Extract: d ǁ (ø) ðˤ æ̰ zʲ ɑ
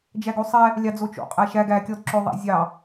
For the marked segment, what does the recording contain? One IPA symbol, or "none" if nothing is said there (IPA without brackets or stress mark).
ø